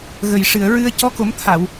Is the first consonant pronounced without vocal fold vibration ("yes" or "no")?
no